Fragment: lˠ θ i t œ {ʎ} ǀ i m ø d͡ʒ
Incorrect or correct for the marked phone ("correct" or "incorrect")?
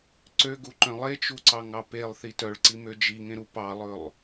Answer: incorrect